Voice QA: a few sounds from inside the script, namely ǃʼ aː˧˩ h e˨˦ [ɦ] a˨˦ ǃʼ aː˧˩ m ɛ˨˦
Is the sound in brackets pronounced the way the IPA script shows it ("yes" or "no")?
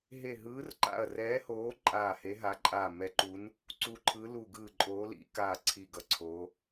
yes